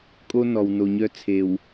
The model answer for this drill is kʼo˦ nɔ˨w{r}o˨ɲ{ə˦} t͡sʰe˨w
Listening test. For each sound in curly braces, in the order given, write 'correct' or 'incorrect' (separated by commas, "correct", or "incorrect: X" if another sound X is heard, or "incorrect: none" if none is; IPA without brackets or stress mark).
incorrect: n, incorrect: œ˦